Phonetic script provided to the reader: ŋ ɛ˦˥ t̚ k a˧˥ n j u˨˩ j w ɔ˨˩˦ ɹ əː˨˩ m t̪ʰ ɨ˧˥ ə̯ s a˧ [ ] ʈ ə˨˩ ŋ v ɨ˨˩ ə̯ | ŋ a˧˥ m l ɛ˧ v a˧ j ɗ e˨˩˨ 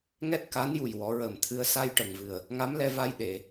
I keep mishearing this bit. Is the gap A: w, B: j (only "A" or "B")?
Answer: B